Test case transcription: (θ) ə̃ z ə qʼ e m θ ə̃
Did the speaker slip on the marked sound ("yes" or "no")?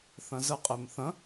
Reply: no